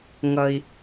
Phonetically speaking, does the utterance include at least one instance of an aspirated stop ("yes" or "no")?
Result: no